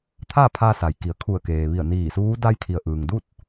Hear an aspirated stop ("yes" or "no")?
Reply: yes